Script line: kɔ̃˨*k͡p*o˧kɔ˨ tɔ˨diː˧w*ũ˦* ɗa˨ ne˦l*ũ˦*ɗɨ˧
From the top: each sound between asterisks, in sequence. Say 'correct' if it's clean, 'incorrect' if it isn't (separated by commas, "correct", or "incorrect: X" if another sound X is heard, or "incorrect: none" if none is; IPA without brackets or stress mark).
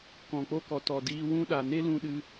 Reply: correct, correct, incorrect: ũ˧